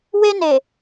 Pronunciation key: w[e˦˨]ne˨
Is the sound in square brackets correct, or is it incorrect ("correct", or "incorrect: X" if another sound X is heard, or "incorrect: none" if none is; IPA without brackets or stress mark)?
incorrect: e˦